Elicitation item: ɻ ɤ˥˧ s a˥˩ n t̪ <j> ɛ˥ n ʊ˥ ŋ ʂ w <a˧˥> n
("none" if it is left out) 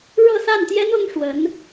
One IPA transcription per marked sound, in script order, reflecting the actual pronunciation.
j, ə˧˥

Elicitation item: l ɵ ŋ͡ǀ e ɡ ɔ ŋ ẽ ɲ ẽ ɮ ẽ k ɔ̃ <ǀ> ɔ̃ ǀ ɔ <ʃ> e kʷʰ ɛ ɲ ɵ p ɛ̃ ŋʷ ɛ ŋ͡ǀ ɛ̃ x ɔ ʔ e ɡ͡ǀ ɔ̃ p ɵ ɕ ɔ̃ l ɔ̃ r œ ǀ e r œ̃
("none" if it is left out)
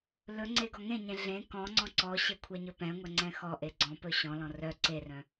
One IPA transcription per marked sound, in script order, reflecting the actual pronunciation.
ŋ͡ǀ, ɕ

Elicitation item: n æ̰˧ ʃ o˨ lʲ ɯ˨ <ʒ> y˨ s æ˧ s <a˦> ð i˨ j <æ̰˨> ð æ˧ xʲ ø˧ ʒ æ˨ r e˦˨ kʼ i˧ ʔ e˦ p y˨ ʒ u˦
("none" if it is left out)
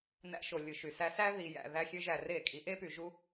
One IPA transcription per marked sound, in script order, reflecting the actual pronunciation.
ʃ, æ˦, æ̰˨

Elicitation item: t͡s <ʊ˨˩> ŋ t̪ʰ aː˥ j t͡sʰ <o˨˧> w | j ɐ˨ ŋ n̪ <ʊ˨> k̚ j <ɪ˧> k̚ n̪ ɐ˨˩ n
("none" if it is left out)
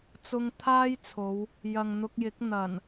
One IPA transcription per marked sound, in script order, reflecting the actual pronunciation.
ʊ˧, o˨˧, ʊ˧, ɪ˨˥

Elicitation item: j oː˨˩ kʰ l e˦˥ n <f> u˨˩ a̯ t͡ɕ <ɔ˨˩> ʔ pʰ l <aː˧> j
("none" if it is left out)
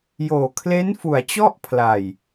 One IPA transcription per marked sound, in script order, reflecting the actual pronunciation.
f, ɔ˥˩, aː˨˩

